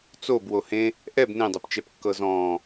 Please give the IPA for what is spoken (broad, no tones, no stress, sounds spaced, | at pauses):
t͡s o b w o h ẽ | ʔ ɛ b n ẽ dˤ ɯ p t͡ʃ ɛ p kː ɤ z ɔ̃ː